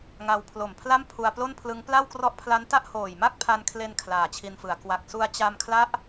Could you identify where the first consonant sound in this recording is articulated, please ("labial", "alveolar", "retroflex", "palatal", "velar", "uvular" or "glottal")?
velar